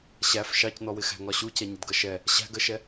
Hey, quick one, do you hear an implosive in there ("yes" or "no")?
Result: no